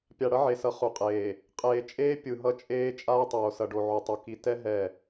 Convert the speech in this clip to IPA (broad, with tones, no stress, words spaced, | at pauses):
pʲa˨ɽʌ˦ʕe˨sʌ˨ χu˨qʼeː˨ | qʼeː˨t͡ʃʼeː˦ pʲɯ˨ɦʌ˦t͡ʃʼeː˦ t͡ʃʼaː˦tˤoː˨sʌ˨ɖo˨ ʕu˨tˤu˨ ki˨tɛ˦ ɦɛ˦˨